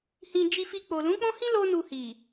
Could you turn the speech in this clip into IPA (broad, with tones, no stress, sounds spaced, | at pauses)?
h ĩ˧ d͡ʒ i˧ f i˧ k͡p o˨ l ũ˨˦ k͡p ɔ̃˦ h ĩ˦ l o˦ n u˧ h i˨